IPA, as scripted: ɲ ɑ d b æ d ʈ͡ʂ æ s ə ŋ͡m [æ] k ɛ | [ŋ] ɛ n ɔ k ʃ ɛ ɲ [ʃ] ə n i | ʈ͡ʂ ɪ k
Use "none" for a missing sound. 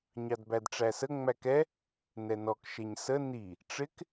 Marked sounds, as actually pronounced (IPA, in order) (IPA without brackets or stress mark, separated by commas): æ, n, s